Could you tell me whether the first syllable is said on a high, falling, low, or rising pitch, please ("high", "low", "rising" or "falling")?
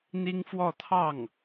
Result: high